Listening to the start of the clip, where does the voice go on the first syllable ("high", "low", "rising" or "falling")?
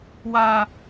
low